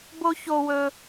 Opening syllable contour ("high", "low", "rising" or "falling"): high